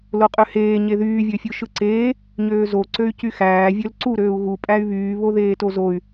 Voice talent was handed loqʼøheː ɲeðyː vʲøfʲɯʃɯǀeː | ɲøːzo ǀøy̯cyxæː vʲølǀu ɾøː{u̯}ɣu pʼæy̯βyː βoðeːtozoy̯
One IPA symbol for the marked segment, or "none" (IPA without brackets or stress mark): u̯